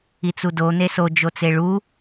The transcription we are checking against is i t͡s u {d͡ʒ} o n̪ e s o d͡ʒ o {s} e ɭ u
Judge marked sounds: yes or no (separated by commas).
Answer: no, no